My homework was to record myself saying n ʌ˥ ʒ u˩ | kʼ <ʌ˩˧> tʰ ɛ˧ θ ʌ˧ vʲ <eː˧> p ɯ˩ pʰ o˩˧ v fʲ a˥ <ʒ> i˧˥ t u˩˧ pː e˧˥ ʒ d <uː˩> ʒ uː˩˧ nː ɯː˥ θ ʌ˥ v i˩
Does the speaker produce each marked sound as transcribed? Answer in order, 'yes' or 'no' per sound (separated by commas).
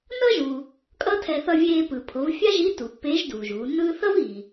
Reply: no, yes, yes, yes